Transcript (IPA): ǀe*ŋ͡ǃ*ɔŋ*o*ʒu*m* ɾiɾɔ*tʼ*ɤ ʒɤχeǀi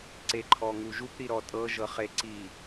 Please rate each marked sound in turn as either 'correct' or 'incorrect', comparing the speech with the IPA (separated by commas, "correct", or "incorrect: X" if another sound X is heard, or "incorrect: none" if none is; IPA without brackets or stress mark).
incorrect: ǃʰ, incorrect: u, incorrect: p, correct